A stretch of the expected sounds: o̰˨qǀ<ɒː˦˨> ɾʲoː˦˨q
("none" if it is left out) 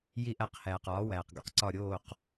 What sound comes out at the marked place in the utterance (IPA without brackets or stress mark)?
ɒ˦˨